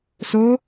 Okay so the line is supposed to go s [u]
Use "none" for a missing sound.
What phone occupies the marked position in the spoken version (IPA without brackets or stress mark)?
o